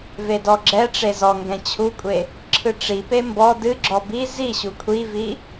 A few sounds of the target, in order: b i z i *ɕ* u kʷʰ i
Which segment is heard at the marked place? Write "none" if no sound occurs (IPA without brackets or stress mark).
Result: ɕ